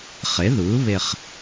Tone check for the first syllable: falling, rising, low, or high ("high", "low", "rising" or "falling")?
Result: rising